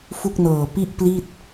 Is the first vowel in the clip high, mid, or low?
high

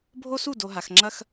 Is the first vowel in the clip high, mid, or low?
mid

